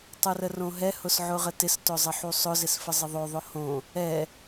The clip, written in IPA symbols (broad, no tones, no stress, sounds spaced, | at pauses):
tˤ u r ə r õ ɦ ɛ h ʊ s ʕ ʊ ʁ ə t ɪ s t ʊ zˤ ə ħ u sˤ ʊ z ɪ s f ə zˤ ɪ ðˤ o ðˤ ʊ h õ | ɛ